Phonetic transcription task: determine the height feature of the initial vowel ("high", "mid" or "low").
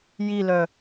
high